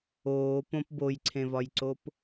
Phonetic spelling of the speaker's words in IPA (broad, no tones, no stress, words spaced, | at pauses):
oːpõp bojǀʰẽvɒjǀop